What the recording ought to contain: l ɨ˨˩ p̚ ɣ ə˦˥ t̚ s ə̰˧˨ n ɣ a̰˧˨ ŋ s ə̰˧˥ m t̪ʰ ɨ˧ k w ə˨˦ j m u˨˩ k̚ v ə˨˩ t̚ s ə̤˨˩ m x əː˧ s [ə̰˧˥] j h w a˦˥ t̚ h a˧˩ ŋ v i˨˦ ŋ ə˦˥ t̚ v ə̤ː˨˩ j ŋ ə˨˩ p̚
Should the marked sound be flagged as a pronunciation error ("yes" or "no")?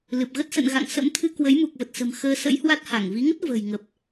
no